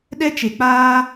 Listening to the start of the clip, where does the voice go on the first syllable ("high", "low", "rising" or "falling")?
high